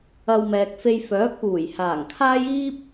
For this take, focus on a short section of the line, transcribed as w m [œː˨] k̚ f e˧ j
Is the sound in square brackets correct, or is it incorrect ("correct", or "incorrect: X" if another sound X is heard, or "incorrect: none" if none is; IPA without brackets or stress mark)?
incorrect: ɛː˨